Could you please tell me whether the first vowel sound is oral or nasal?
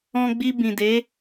nasal